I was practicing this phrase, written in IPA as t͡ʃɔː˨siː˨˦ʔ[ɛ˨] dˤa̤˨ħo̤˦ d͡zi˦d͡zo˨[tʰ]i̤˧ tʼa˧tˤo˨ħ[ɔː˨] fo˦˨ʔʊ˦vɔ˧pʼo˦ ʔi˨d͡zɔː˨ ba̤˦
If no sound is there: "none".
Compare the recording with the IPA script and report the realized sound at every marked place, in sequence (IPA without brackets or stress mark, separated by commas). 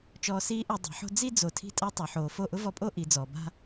ɛ˨, tʰ, oː˨